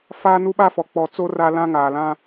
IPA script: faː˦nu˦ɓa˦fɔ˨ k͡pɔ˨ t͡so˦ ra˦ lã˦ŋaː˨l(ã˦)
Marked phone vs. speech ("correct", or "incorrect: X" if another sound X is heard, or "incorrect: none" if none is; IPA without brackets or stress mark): correct